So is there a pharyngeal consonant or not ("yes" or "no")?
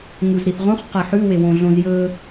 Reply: yes